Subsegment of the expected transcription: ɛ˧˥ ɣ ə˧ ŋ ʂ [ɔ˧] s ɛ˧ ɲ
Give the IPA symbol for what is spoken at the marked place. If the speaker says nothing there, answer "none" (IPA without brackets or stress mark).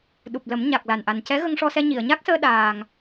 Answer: ɔ˧